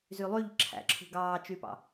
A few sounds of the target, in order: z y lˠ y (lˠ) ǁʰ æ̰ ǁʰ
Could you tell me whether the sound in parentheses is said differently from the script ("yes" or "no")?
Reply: yes